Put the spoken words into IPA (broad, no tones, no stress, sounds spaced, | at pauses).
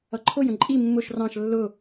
ʌ ǃʰ ʊ j ə̃ ǃʼ i mː ʊ ʃ r ɑ̃ ʃ lː ʊ